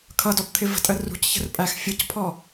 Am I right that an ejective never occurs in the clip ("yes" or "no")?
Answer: no